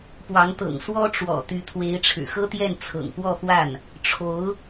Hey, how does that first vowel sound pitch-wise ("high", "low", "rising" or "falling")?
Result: rising